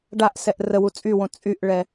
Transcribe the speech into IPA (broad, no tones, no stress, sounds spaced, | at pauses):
ɖ a ʔ s ɛ ʔ r ə w u t͡sʼ y w õ t͡sʼ y ʔ ɭ ɛ